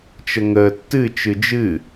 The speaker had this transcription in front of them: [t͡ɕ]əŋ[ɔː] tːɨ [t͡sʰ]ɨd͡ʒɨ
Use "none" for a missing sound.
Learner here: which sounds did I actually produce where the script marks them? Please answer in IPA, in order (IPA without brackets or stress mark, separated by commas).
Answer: t͡ʃ, əː, t͡ʃ